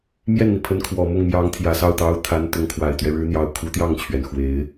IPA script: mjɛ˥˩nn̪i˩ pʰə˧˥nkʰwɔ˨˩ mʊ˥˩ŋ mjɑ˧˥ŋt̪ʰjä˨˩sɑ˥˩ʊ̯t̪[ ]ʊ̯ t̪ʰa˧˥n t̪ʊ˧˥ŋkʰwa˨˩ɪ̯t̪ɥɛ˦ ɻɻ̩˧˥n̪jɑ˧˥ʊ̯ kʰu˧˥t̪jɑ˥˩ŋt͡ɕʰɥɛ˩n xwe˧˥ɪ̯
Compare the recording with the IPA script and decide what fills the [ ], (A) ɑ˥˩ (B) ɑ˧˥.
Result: B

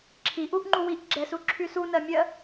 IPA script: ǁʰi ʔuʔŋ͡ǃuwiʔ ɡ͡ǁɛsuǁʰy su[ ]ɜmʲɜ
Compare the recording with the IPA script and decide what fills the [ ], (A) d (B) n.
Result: B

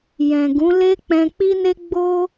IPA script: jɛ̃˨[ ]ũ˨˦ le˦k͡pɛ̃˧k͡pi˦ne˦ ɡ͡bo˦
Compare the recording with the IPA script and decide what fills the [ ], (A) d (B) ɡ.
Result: B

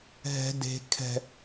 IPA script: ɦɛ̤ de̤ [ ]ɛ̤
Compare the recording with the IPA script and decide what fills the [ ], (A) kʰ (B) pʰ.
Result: A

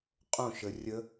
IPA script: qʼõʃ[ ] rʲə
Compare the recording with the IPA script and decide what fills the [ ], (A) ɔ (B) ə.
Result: B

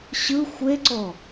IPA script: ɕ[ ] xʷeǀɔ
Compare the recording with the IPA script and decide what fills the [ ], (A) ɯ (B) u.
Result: A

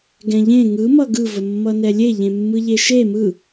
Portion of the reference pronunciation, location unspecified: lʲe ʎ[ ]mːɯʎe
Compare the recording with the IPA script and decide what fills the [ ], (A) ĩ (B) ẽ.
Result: B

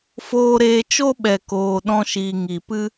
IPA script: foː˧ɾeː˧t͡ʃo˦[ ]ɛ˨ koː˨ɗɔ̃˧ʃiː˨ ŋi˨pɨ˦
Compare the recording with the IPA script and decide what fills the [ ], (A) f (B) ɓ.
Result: B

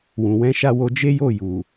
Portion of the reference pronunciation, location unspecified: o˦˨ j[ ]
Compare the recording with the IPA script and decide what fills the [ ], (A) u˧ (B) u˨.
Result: B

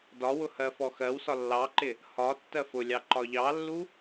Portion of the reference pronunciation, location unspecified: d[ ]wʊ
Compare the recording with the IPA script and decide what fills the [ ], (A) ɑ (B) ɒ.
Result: B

